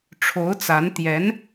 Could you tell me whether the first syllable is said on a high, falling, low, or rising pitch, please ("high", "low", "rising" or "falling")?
rising